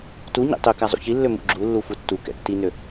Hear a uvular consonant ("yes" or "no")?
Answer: no